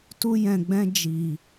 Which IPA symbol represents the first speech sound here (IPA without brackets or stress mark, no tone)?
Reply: t